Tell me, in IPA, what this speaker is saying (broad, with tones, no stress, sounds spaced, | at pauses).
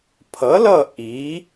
pʰ ʌ˨˥ l ʌ˦˨ ʔ i˨˥